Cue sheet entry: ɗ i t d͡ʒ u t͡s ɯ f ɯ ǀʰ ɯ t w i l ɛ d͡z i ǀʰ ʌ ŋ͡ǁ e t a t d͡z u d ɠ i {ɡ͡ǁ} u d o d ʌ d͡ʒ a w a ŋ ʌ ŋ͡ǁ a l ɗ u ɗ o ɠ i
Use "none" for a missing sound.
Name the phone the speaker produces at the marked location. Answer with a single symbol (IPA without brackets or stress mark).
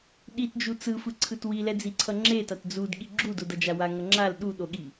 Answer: ɡ͡ǁ